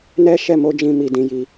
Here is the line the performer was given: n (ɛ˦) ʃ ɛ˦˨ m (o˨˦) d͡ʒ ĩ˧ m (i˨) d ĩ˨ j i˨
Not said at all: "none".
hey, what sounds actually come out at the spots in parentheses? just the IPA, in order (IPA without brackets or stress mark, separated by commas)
ɛ˦, o˨˦, i˨